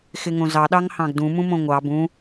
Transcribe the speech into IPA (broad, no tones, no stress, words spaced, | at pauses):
xɪŋõzɑ ɗɑŋhɑ̃ɡdũ mũmõŋʷɑ bũ